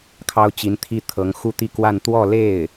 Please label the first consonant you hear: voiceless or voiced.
voiceless